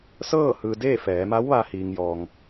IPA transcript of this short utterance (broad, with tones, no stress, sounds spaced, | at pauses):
s ɤː˥˨ h ɯː˩ d e˥˨ f ɛː˩˧ m a˧˥ w ʋ a˧ h iː˩ ŋ j ɔː˩ ŋ